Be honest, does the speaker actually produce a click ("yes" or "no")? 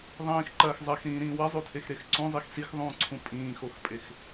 yes